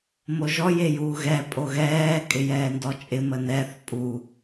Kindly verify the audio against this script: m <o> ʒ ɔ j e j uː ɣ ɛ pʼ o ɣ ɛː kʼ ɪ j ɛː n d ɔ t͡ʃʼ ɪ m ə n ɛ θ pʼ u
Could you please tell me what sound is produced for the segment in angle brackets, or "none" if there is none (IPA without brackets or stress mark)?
o